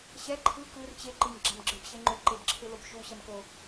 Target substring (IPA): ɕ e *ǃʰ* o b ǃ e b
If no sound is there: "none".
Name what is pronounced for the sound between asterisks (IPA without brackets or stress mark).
ŋ͡ǃ